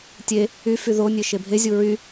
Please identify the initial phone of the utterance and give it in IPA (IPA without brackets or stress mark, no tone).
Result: tʲ